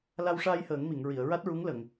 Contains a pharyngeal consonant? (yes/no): no